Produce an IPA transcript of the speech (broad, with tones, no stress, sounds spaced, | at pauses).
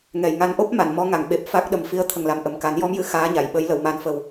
ŋ ɛ˨˩ j ŋ a˧ n ʔ o˦˥ p̚ m a˨˩˨ n m ɔ˧˥ ŋ a˨˩˨ ŋ ɓ e˨˩ p̚ f a˦˥ k̚ ɗ ə˨˩ m f i˧˥ ə̯ t̪ʰ ə˨˩ ŋ l a˨˩ m ʔ ə˨˩ m k a˨˩˦ n j ɔ˧˥ m j ɨ˨˩˨ x aː˧˥ ɲ a˨˩˨ j ɓ ə˨˩˦ j l ə˨˩˨ w m a˨˩ n f ə˨˩ w